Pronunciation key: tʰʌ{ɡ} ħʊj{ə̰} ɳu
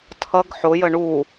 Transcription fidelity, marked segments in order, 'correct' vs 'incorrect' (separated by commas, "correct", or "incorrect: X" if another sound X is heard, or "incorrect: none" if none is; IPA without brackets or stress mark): correct, incorrect: ə